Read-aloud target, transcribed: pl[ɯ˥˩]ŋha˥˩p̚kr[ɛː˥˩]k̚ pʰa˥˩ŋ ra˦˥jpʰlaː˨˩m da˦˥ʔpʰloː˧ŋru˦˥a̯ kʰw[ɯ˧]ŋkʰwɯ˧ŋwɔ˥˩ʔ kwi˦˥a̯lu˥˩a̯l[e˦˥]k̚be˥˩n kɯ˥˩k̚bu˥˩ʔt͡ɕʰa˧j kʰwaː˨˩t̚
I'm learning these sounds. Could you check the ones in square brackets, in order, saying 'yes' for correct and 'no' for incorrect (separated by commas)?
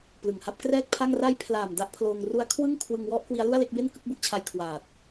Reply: no, yes, no, no